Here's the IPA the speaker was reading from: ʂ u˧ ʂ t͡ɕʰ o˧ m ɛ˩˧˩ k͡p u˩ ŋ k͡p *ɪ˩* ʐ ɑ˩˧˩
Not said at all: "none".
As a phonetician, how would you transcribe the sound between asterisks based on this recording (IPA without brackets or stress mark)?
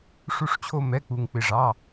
ɪ˩